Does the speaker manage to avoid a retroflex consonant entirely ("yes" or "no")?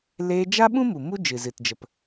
yes